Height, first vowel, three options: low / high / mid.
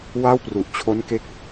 low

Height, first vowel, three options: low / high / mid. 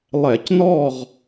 mid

